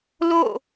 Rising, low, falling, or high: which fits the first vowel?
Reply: falling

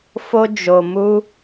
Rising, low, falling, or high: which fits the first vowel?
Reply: high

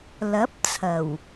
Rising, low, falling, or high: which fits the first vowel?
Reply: rising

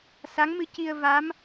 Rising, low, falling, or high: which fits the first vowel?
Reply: rising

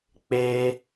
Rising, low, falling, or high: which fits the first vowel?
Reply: high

